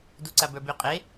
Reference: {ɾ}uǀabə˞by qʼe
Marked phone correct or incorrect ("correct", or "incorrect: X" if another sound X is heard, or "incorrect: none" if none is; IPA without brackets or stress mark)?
incorrect: d